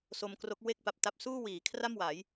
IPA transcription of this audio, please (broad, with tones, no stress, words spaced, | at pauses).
so˧mkro˦˥k̚ we˥˩k̚pa˨˩p̚ta˦˥p̚ suː˥˩wiː˩˦kʰra˥˩mwa˩˦j